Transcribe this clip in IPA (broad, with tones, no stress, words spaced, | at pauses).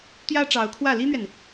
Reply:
t̪jä˥ʈ͡ʂɑ˧˥ʊ̯kʰwä˥˩ li˥n̪ɥɛ˨n